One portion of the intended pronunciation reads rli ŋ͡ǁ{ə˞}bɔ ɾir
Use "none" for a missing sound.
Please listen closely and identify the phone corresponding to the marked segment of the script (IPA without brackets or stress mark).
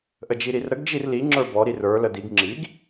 ə˞